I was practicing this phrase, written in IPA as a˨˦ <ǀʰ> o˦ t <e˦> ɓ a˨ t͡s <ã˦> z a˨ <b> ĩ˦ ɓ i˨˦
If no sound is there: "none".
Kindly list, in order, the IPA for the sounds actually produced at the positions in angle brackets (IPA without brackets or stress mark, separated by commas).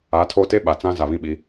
tʰ, e˦, ã˦, β